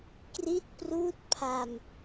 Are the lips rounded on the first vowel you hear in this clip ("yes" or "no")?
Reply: no